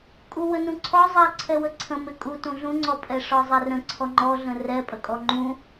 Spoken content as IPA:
kʼ u w ə n ũ ǀʰ ɔ zˤ ə ǀʰ ɛ w ə ǀʰ ə̃ m ɪ kʼ u t ũ ɮ ũ ŋ͡ǀ ɔ pʼ ɛ ʂ ɔ zˤ ɛ r ə̃ ǀʰ ɔ ŋ͡ǃ ɔ ɮ ə̃ r ɛ pʼ ə kʼ ɔ ŋ͡ǃ ũ

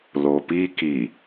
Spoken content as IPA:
l o p i k i

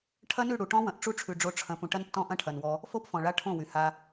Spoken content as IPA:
ʈʰ ɐ˦ n ʉ˦˨ ɽ u˨ ʈ ɔ̃˦ w ɐ̃˨ ʔ ʈ͡ʂ u˦ ʈ͡ʂʰ ʉ˨ ɖ͡ʐ o˧ ʈ͡ʂʰ ɐ̃˧ p ũ˨ ʈ ɐ˦ n tː ɔ̃˦ ʔ ɐ̃˦ ʈʰ ɐ˨ n w ɔ˧ | f o˦ p f ɔ̃˨ ɭ a˧ ʈʰ õ˦˨ w y˨ h a˧

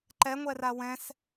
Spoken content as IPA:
ǃ ɛ ŋʷ ɛ r a w ɛ̃ s

